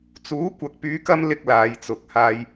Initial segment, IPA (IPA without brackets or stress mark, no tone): t͡s